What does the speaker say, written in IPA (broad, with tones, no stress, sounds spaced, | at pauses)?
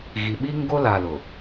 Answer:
ɣ i˨ ɓ i˦ ŋ ɡ o˦ l a˨ l ʊ˨